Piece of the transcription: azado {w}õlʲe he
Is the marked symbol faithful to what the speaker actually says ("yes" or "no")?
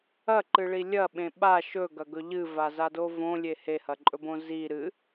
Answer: no